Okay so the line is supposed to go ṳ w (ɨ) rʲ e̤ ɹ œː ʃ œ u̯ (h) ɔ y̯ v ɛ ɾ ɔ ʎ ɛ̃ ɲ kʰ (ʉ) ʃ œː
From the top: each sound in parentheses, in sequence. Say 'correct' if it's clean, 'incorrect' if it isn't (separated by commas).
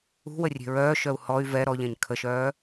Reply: incorrect, correct, incorrect